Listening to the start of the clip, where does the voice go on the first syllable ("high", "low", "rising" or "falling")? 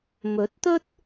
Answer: rising